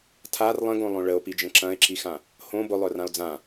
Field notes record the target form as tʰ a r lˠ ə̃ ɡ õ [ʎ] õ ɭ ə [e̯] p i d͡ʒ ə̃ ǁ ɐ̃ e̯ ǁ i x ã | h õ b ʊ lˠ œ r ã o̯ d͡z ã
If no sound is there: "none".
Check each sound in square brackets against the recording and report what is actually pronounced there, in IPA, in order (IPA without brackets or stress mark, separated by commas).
lˠ, o̯